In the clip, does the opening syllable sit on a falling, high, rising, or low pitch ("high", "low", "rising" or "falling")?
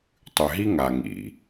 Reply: low